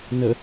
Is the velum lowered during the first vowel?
no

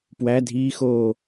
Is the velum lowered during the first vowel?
no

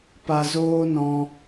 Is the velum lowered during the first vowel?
no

